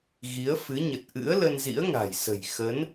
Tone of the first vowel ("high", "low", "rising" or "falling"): rising